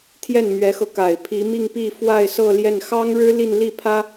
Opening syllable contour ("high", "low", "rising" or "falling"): falling